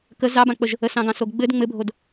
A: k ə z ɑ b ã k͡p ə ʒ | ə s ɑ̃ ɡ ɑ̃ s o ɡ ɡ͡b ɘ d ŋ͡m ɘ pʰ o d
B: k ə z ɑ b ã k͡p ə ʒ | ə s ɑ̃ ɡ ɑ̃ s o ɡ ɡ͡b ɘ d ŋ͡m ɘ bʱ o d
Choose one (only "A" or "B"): B